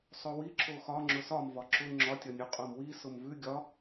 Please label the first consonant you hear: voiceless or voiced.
voiceless